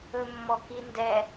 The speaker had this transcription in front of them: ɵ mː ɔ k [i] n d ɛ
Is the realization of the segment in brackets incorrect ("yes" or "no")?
no